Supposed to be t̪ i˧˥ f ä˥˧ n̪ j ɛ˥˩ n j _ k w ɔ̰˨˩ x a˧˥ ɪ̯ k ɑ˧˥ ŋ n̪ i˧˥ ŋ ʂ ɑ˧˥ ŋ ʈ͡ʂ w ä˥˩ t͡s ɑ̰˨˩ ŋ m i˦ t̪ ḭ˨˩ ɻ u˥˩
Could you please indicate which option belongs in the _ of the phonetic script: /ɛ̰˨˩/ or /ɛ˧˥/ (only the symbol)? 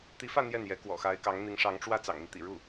ɛ˧˥